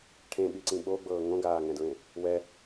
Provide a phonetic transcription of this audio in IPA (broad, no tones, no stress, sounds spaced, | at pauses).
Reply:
ʈʰ ẽ ɓ i ǀ ĩ ɓ o ɡ͡b ɤː ŋ õ ɡ aː ŋ ɛ̃ d ɹ ẽ | w ɛ